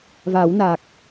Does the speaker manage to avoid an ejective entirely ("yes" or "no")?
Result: yes